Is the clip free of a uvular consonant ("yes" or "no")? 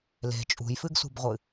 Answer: no